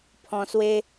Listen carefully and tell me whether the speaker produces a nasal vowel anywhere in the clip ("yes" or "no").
yes